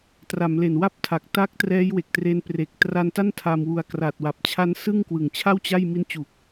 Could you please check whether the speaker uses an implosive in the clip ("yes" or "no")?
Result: no